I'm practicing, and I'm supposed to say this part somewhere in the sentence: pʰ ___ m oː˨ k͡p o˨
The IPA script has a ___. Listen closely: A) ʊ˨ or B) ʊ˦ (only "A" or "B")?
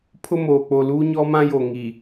B